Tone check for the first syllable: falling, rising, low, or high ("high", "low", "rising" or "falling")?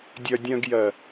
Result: low